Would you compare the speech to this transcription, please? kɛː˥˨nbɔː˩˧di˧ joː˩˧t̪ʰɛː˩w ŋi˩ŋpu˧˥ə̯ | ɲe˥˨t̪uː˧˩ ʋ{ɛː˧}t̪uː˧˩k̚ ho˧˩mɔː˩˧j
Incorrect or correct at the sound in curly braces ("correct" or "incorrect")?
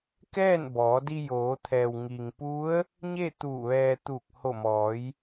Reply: correct